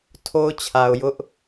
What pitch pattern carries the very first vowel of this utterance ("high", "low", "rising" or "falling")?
high